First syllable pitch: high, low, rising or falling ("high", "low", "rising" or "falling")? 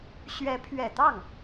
rising